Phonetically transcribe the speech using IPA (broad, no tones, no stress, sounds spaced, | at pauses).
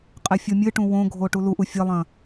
qʼ e fʲ o mʲ ɨ ʈ ũ w õ ɡʱ o ʈ u l u ʔ u fʲ ɐ lˠ ɐ̃